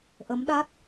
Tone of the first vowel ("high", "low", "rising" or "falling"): rising